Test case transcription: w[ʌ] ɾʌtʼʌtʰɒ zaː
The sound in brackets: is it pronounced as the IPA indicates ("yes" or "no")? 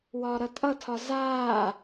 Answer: no